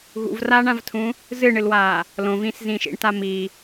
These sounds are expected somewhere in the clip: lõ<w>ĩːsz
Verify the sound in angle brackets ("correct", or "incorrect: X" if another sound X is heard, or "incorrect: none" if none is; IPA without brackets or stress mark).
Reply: incorrect: v